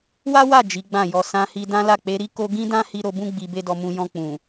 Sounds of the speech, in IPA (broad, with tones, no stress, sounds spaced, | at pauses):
w a˦ w a˦˨ d͡ʒ i˨˦ ɡ͡b ã˦˨ j ɔ˧ s ã˧ h i˧ d ã˦ l a˦˨ k͡p e˨˦ ɾ i˦ k o˦ ɡ ĩ˦ d ã˦ h i˧ ɾ o˧ b ũ˦ ɡ͡b i˧ b e˦ d ɔ˧ m ũ˧ j ɔ̃˧ k͡p ũ˨